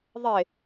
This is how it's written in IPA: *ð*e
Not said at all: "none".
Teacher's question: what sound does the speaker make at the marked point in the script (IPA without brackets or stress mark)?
ðˤ